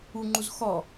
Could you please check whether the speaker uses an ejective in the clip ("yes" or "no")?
no